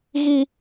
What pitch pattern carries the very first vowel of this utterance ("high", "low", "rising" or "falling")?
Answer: high